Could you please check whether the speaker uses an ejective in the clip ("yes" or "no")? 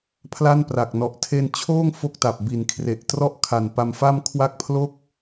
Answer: no